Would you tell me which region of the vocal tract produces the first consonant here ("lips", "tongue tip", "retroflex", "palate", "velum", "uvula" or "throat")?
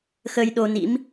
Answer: velum